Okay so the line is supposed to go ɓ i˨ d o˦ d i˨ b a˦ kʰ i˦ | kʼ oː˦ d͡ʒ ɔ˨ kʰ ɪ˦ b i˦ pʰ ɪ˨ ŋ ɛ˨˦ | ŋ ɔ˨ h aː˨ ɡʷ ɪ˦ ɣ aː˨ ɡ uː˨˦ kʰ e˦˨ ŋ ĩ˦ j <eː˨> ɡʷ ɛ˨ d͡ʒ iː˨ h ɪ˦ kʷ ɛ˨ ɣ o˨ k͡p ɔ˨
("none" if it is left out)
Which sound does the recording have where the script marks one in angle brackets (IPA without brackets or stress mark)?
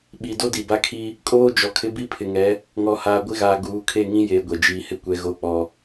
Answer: eː˨